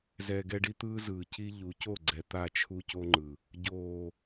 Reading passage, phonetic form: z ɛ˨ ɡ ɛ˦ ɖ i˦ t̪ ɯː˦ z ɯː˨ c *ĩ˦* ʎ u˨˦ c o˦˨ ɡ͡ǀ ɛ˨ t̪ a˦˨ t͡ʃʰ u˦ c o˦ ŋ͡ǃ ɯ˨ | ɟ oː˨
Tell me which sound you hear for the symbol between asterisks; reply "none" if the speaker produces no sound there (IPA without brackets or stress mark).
i˦